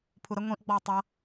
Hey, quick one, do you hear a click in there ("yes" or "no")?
no